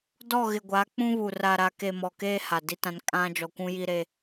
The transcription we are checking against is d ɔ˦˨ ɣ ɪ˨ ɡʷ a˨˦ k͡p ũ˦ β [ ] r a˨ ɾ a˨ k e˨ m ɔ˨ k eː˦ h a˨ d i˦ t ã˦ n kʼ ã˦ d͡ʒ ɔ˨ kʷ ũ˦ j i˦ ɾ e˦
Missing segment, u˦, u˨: u˨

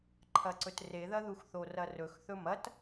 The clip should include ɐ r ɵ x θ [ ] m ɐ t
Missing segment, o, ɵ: ɵ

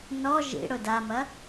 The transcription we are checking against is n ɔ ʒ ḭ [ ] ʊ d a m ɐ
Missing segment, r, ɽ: ɽ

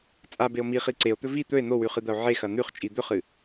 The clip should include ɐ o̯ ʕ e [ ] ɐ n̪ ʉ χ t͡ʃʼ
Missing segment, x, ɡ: x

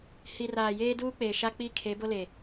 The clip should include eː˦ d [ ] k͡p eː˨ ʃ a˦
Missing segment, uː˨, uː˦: uː˦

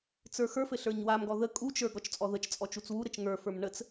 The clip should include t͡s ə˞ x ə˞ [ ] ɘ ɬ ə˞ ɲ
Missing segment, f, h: f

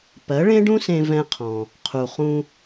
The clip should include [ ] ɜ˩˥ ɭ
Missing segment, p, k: p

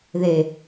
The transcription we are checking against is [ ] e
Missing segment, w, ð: ð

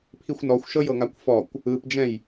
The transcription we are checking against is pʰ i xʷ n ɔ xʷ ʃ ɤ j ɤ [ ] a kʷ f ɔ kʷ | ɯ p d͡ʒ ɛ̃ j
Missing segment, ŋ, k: ŋ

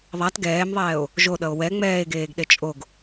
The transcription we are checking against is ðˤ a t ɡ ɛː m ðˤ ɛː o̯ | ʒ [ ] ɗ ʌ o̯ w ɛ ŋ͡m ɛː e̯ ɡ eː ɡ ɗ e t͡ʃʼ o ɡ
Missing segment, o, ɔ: o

